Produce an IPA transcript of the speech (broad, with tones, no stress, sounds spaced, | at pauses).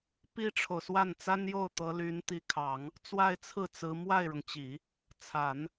p i˥ ʈ͡ʂʰ o˨ ʊ̯ s w a˥˩ n t͡s a˥ n j o˥˩ ʊ̯ t̪ ɤ˧˥ l y˧˥ n t̪ i˧˥ kʰ ɑ˨˩˦ ŋ | t͡s w a˥˧ ɪ̯ t͡sʰ ɹ̩˥˩ t͡s ɹ̩˧˥ m w a˥˩ ɪ̯ ɻ ʊ˩ ŋ t͡ɕ i˨˩˦ | t͡sʰ a˨˩˦ n